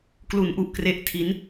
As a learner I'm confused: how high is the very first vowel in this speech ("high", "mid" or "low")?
high